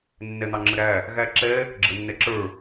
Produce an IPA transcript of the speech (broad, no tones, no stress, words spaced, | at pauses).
nːɛn̪ɑŋ͡ǁəɾæ | ɣæǁɛ | ɡ͡ǁənːɛǁə˞